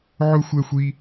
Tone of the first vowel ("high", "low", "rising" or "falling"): high